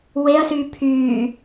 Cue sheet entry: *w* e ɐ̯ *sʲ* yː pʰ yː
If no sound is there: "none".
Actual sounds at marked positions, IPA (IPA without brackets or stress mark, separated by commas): w, s